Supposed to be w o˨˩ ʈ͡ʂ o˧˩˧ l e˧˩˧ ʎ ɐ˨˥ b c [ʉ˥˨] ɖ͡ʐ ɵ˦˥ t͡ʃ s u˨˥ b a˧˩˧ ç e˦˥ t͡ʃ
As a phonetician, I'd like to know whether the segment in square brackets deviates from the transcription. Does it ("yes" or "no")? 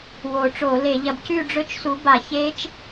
no